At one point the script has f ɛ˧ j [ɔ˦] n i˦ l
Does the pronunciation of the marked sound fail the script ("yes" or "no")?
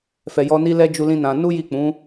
no